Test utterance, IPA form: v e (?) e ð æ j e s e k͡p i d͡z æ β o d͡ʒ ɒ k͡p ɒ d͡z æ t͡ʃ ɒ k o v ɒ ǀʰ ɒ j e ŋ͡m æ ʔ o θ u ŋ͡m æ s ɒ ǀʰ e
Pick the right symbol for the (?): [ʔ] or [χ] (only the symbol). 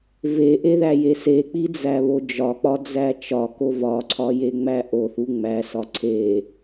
ʔ